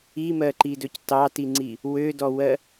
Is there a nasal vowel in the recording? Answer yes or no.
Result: no